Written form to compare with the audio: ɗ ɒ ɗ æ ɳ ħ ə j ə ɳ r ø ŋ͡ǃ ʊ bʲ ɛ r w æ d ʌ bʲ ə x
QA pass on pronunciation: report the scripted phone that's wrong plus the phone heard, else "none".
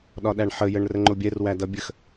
ø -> ə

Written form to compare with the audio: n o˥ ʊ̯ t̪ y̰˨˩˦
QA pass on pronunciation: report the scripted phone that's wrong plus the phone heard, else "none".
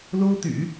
n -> l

